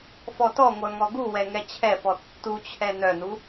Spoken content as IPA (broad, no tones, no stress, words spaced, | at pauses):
fɔtɔŋʷœ ŋɔɡuwɛ ŋɛt͡ɕʰɛfɔ tːut͡ɕʰɛ nœnu